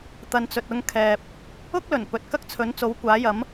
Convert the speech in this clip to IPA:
t̪ ɐ˨ n t͡s ɵ˨ t̚ ʊ˧ ŋ kʰ ɛː˨ p̚ | ʊ˥ k̚ l ɵ˨˩ n p ɵ˨ t̚ k ɐ˥ k̚ t͡sʰ ɵ˨˥ n t͡s o˨˥ w kʷ aː˨˥ j ɐ˨˥ m

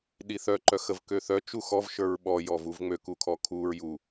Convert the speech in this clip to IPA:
ɗ i θ œ ǃ œ x ə v k ø θ œ t͡ʃ u x ɔ v ʃ ə˞ ɹ ɓ ɔ j ɔ v u v ŋ͡m ø k u kʰ ɔ kʰ u ɹ j u

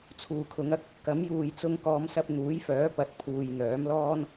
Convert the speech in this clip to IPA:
t͡sʰ uː˨˩ kʰ ʊ˨˥ ŋ ɐ˥ k̚ | k ɐ˨˥ m j uː˨ j t͡s ʊ˧ ŋ k ɔː˨˧ m s ɐ˧ p̚ n̪ uː˨˥ j f œː˨˥ p ɐ˨˥ t̚ pʰ uː˨ j n̪ œː˨˥ m l ɔː˥ n

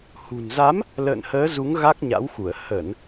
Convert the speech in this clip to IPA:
h ṳ˨˩ n z a˨˦ m | l ə̰ː˧˨ n h əː˨˦ z u˨˦ ŋ ɣ a˦˥ k̚ ɲ a̰˧˥ w x u˧˩ ə̯ h ə˧˩˨ n

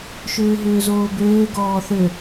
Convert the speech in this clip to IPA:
ʃ ʏː ɦ ʏː z oː b øː ɡ ɔː θ ø

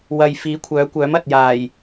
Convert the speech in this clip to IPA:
w ɐ˨ j f iː˨˥ kʷʰ œː˨˥ kʷ œː˨˥ m ɐ˨ t̚ j aː˨˩ j

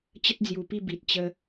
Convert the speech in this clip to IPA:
t͡ɕ ə˦ t̚ d͡z j u˨˩ p i˥˧ b i˨ t̚ t͡ɕ ə˧

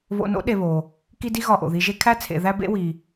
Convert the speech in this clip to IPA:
β o̰˨ n o̰˦ ɗ e˨ β o˩ | k i˦ d i˦ ɣ ɒ˨ ʔ o̰˩ ð i˨ ʒ e˦ kʰ æ˥ t͡sʰ ḛ˨ ð æ˦ b ḛ˦ w i˩

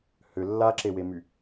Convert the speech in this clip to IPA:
h ʏ lː a ǁ e w e m y

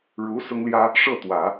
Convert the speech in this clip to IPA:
ɻ u˧˥ s ʊ˥ ŋ l j ä˥ | ʂ ɤ˥˩ t̪ w ä˨˩˦

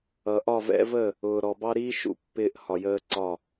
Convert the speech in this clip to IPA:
ʌ˨ ʔ ɒ˦˨ v ɛ̰˦ v ə˦˨ | ʊː˨ ɾ ɔ˨ b ɑ˦ ɾ iː˦ ʃ ṵ˨ pː ɪː˦ ʔ h ɒ˨ j əː˦ ǀ ɒ˦˨

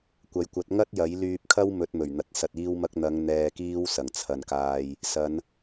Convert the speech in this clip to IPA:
kʷ ɐ˨˥ j kʷ ɐ˨˥ t̚ ŋ ɐ˥ t̚ j ɐ˨˥ j l yː˧ p̚ kʰ ɐ˥ w m ɵ˨˥ t̚ m ɵ˨˩ ɥ n̪ ɐ˨˥ t̚ s ɐ˧ t̚ iː˥ w m ɐ˥ k̚ n̪ ɐ˨˧ ŋ n̪ ɛː˨ k iː˥ w s ɐ˨˩ ŋ t͡sʰ ɐ˨ n k aː˧ j | s ɐ˨˧ n

